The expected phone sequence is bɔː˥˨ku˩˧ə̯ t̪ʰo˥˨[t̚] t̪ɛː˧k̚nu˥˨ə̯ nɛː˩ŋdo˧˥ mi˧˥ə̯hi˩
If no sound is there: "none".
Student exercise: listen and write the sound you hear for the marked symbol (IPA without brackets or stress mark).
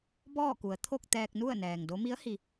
k̚